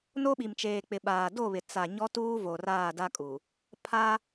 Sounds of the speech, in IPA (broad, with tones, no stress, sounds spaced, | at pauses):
n o˦ ɓ i˨ m t͡ʃ eː˨ k͡p ɪ˨ ɓ aː˨ d o˦˨ β ɪ˨ t͡s a˨ ɲ ɔ˦ t uː˦ v o˨ r aː˦˨ d a˦ kʼ u˨ | pʰ a˦